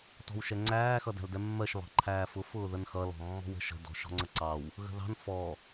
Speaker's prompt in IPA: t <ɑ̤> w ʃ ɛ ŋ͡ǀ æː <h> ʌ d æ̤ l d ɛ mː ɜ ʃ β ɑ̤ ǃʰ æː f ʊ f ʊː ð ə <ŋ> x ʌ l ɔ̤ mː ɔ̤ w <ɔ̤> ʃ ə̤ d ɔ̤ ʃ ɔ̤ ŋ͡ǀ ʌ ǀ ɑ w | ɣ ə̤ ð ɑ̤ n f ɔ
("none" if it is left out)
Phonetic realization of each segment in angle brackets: ɔ̤, x, n, ə̤

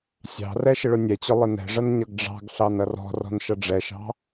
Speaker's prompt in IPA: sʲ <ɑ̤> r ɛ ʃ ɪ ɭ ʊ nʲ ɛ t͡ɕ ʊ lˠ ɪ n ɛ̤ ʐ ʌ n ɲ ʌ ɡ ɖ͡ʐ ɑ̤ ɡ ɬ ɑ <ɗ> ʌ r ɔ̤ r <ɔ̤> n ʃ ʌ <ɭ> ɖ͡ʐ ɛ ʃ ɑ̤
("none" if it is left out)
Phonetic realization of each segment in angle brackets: ɑ̤, n, ɔ̤, none

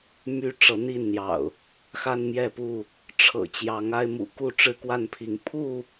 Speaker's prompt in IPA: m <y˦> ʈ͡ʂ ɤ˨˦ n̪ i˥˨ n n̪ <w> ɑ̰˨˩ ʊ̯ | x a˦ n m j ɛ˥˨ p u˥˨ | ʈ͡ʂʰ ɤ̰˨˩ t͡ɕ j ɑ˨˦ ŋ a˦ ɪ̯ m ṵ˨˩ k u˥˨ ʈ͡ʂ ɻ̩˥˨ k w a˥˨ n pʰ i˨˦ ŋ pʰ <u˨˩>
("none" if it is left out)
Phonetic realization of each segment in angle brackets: y˦, j, u˥˨

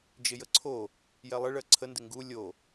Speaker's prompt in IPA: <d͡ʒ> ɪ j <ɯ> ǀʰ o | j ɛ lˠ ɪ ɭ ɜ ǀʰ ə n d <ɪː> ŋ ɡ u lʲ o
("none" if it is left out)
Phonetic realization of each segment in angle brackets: d͡ʒ, ə, ɪ

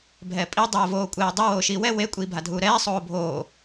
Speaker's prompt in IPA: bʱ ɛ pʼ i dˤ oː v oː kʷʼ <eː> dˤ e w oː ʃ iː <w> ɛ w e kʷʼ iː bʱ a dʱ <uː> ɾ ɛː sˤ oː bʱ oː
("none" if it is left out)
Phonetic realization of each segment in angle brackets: eː, w, uː

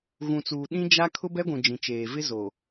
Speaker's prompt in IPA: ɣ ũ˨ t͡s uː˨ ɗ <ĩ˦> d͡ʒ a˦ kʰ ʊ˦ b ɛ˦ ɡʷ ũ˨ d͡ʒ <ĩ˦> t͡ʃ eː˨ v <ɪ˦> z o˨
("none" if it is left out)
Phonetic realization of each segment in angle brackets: ĩ˦, ĩ˨, ɪ˦

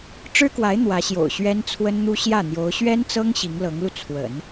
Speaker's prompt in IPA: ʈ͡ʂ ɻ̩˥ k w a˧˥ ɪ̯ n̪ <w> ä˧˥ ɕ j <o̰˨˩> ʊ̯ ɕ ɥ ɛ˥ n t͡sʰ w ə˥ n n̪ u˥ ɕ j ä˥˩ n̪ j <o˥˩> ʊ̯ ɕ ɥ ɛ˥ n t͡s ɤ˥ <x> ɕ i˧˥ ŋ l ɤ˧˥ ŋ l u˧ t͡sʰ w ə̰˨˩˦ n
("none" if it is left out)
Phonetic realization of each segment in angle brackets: w, o̰˨˩, o˧˥, ŋ

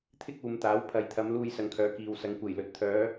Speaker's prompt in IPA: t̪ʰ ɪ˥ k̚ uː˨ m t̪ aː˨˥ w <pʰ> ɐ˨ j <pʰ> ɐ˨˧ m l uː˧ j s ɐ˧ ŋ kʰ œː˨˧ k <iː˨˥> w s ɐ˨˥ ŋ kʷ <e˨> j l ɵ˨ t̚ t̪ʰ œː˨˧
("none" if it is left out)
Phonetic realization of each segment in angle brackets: pʰ, t̪ʰ, iː˨, e˨˩

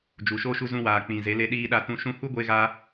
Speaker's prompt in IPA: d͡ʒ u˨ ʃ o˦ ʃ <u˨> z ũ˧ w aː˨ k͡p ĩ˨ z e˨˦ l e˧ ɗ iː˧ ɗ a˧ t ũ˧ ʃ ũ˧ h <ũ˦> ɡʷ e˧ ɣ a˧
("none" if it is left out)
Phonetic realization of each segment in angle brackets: u˧, u˦

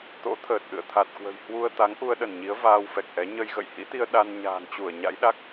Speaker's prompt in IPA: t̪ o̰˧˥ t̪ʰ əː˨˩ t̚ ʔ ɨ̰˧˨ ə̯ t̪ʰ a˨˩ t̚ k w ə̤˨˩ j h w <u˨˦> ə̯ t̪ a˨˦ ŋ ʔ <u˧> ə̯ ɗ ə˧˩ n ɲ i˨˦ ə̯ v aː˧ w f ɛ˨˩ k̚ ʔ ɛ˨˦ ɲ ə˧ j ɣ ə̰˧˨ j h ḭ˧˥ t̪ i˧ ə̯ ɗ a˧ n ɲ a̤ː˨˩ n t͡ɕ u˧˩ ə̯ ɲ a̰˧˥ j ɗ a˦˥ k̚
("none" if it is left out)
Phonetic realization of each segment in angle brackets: u˧, u˧

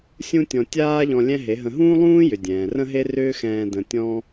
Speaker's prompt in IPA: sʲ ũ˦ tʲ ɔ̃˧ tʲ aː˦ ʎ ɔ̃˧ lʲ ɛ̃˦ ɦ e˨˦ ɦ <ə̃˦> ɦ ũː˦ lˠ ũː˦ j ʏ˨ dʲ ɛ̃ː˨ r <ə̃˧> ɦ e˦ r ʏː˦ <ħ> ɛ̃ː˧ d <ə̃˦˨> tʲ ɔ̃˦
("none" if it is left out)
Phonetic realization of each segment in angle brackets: ə̃˧, ə̃˦, x, ə̃˧

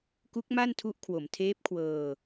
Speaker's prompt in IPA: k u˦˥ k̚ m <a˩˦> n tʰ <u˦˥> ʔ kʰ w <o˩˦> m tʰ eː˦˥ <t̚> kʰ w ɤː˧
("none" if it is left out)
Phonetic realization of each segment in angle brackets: a˥˩, u˦˥, o˩˦, p̚

